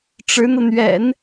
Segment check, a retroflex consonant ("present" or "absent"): present